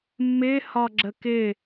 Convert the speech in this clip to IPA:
mː ɪː h ɒ ɡ͡ǁ ə k ɪ

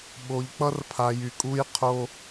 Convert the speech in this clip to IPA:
ɓ o˧ ʎ k͡p ʌ˦ r pʰ a˧ j y˧ kʼ u˦ j qʰ o˦

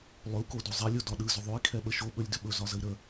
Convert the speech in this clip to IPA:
lˠ ɵ u̯ k o d o zˤ ɛ lʲ o d ɒ ɗ ɯ z ʏ ðˤ o i̯ kʰ ɛ ɓ ə ʃ o ɓ ɵ lʲ d ʏ ɓ ɵ z ɒ z ə i̯ ɾ ə

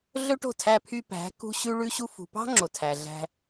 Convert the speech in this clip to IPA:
ɮ ɵ˦ ʈ o̤˦˨ tʰ æ˧ pʰ y˧ p æ̤˨˦ k ṳ˦ ɕ ʉ˦ ɭ ʉ˦ ɕ u˧ f ṳ˨ p ɑ̤˦ ŋ͡ǁ o˨ tʰ æ˨ ɮ æ̤˧

